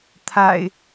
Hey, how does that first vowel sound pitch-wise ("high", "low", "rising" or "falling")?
low